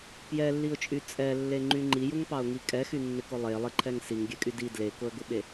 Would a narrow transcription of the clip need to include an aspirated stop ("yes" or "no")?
yes